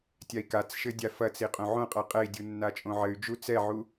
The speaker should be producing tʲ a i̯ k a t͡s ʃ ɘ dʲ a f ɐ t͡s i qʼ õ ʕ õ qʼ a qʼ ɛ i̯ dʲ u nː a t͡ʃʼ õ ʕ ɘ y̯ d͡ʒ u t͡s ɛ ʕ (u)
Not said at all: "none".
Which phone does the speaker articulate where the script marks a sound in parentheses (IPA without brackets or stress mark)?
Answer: u